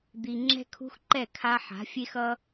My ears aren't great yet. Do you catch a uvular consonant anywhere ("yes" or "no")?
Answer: no